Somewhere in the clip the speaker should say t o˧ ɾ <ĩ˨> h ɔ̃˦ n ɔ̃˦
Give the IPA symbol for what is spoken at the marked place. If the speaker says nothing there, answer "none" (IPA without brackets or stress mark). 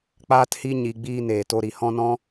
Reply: i˨